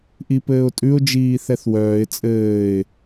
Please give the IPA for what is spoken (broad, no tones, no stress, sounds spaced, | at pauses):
ʔ i p ɘː ʊ̯ tʼ ʉ ʊ̯ d͡ʒ iː θ ɛ θ w œː ɪ̯ t͡sʼ ɘː ɪ̯